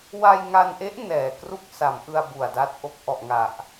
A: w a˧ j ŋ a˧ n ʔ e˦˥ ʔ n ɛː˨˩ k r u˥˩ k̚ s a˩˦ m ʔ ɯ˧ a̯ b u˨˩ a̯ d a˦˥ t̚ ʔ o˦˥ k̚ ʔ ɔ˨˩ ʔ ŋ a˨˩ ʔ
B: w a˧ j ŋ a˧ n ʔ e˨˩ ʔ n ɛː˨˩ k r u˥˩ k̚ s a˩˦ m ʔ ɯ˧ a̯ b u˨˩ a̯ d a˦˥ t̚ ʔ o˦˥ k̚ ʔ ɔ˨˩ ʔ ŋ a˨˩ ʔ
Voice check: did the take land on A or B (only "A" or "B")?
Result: A